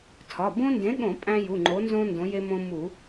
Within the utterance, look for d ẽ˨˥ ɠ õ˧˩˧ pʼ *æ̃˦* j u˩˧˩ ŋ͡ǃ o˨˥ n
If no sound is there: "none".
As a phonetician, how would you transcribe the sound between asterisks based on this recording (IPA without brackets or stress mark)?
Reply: æ̃˦